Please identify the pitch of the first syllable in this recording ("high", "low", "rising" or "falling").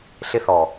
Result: high